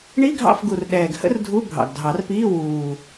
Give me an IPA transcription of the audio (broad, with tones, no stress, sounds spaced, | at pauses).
ɳ i˧˥˧ ɡʱ ɑ̰˦˨ f ɡ u˨˩ r ɗ ɛː˨˩ ɡ h ə̰˥ r dʱ u˧˥˧ bʱ ɑ̰˨˩ ɡ dʱ ɑ˨˩˦ r p iː˧˥˧ w uː˨˩